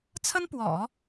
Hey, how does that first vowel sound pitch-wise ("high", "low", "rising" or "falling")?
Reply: high